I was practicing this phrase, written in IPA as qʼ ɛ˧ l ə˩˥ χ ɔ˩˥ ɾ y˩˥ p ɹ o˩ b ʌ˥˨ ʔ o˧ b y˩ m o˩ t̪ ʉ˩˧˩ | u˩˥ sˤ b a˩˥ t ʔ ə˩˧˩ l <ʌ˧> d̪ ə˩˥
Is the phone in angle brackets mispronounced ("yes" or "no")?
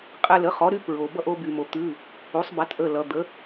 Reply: yes